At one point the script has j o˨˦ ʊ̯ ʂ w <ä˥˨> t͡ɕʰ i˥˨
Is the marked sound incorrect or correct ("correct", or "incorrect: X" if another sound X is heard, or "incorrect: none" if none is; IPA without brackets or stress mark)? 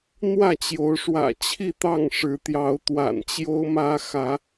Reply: incorrect: ä̰˨˩